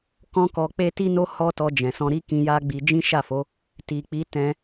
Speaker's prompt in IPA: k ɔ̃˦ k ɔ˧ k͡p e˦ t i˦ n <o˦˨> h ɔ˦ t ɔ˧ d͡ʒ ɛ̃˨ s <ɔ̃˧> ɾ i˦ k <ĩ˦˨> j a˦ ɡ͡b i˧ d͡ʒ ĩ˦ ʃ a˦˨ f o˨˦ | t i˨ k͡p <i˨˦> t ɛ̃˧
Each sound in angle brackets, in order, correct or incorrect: incorrect, correct, incorrect, correct

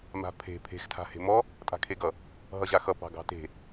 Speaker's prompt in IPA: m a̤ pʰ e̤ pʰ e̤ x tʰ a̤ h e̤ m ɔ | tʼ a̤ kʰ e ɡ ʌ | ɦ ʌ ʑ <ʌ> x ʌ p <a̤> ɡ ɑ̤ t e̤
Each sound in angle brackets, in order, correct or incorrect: incorrect, incorrect

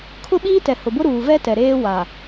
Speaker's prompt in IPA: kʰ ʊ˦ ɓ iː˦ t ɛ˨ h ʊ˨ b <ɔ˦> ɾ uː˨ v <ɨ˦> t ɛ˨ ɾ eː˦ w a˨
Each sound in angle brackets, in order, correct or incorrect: incorrect, incorrect

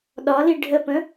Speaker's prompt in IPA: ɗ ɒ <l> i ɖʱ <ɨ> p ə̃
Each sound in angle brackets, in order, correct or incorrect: correct, incorrect

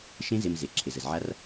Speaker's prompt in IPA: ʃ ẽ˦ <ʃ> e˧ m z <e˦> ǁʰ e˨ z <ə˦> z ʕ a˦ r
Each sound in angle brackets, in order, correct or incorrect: incorrect, incorrect, incorrect

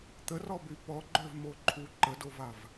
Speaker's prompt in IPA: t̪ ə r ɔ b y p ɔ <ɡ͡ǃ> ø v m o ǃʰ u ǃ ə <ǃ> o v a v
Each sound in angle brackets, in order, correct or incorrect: correct, incorrect

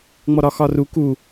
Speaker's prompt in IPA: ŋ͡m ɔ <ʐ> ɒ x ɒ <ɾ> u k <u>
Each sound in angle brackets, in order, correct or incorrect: incorrect, incorrect, correct

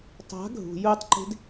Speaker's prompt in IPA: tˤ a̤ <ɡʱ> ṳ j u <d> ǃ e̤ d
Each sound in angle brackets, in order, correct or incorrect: correct, incorrect

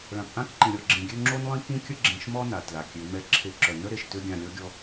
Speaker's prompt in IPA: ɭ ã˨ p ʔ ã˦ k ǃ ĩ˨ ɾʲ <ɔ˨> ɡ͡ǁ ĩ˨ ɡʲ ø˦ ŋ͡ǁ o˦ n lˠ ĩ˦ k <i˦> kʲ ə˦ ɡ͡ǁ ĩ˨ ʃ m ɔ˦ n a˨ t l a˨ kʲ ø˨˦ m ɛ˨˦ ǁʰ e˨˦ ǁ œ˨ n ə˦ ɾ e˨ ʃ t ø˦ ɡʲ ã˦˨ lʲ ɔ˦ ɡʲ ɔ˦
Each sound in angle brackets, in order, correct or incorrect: correct, incorrect

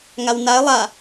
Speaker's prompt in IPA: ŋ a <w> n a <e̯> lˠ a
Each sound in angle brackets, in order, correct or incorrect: correct, correct

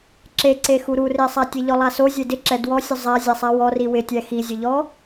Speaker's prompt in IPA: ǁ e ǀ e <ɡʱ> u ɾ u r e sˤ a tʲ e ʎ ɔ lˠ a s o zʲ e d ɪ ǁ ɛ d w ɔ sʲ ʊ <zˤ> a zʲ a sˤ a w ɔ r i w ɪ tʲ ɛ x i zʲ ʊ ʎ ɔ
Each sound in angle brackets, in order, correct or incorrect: incorrect, correct

